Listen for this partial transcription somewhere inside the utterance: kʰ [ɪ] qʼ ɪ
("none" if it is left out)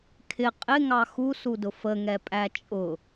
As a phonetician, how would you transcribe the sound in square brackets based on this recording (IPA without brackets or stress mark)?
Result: ɪ